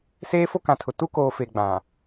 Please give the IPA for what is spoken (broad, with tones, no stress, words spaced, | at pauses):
seː˦fo˦kã˨tʰʊ˨ tu˦koː˨ fe˨ɡ͡bã˨